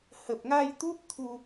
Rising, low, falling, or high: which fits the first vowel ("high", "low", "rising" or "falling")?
low